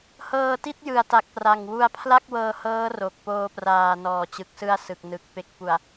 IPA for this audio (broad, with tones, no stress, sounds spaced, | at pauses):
h ɤː˧ t i˥˩ t̚ j ɯ˨˩ a̯ t a˨˩ k̚ p r a˨˩ ŋ w u˧ a̯ pʰ l a˥˩ k̚ w ɤː˧ h ɤː˦˥ r o˨˩ k̚ p oː˧ p r aː˨˩ n ɔː˩˦ t͡ɕ ɯ˨˩ k̚ s ɯ˧ a̯ s ɯ˨˩ k̚ n ɯ˨˩ k̚ p e˨˩ k̚ p u˨˩ a̯